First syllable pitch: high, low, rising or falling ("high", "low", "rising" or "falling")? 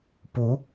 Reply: rising